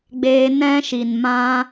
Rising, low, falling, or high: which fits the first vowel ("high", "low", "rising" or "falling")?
high